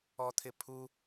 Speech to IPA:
ɔ t̪ʰ ɪ pʰ u

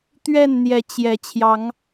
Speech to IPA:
t̪ ɥ ɛ˥˨ n n̪ j ɛ˨˦ t͡ɕ j ɛ˨˦ t͡ɕʰ j ɑ˨˦ ŋ

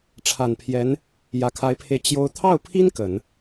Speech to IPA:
ʈ͡ʂʰ a˨˩ n pʰ j ɛ˧˥ n | j ä˨˩ kʰ a˧˥ ɪ̯ pʰ e˧ ɪ̯ t͡ɕ j o˥ ʊ̯ t̪ʰ ɑ˥˩ ʊ̯ pʰ i˥ n k ə˨˩˦ n

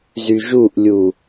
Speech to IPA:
z y ʒ u ʔ lʲ u

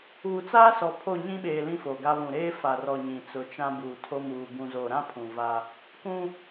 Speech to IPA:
uː˨ t͡s aː˦ s ɔ˨ pʰ o˦˨ ɲ ĩ˦ ɓ eː˨ l ĩ˦ f o˨ ɡ a˦ β ũ˨ ɾ eː˦ f a˨ r ɔ˨ ɲ ĩ˨ t͡s ʊ˨˦ t͡ʃ ã˦ b uː˨ tʰ o˦ m uː˨ b ũ˨ z o˨ ɾ ã˦ pʰ ũ˨ v a˦ | k ũ˦

